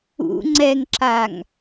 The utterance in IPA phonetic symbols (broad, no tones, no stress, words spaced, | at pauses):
ṵ ŋ͡ǀɛŋǁaŋ